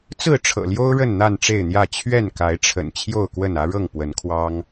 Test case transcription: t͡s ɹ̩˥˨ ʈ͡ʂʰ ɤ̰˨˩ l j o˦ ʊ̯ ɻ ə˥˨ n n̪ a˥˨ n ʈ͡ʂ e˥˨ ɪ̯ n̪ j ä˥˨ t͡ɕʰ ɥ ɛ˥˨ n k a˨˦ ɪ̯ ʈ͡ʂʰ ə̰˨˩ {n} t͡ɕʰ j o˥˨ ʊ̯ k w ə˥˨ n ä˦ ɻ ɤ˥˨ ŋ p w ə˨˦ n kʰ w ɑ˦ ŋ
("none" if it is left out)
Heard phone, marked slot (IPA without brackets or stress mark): n